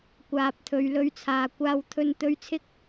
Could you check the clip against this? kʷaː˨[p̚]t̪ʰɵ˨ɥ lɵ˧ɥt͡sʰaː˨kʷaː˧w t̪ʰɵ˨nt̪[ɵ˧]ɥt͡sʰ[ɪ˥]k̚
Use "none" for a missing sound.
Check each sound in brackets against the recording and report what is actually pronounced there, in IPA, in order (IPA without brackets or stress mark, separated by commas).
p̚, ɵ˨˧, ɪ˧